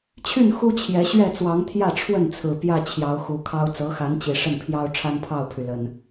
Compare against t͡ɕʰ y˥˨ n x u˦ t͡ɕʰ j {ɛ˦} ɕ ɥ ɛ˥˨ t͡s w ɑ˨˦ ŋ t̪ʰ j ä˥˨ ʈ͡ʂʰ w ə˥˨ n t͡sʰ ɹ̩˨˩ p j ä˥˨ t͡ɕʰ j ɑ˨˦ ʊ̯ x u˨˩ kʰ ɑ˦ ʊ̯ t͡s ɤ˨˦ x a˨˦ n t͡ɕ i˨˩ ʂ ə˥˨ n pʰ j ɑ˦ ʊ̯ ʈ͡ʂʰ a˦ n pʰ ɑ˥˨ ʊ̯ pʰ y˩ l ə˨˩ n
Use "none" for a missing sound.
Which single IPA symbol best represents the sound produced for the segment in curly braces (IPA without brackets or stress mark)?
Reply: ɛ˨˦